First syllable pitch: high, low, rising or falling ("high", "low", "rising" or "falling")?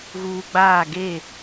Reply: low